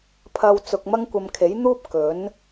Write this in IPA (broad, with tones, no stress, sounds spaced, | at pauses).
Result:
pʰ ɐ˧ w t͡s ʊ˨ k̚ m ɐ˥ ŋ kʷ ɐ˧ m kʰ e˨˥ j n̪ uː˥ p̚ k ɵ˨˥ n